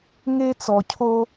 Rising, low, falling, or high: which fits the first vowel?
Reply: high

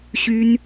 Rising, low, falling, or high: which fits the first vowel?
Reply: high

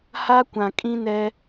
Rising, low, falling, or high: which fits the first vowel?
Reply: high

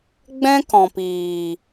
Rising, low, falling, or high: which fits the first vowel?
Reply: high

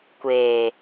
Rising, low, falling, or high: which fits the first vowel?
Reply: low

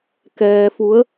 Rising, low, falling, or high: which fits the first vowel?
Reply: low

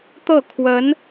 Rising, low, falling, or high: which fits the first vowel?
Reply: falling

